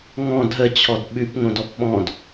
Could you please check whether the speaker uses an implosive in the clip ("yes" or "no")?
yes